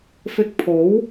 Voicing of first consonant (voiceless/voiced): voiceless